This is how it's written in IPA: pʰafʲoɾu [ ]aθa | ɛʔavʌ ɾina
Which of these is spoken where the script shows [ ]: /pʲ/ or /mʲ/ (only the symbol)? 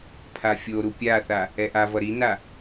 pʲ